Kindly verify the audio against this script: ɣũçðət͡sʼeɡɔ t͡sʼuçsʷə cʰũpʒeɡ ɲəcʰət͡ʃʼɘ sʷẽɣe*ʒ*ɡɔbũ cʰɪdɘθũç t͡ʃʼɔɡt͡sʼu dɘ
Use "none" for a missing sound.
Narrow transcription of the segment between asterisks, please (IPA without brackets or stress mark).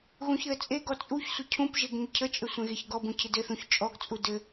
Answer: ç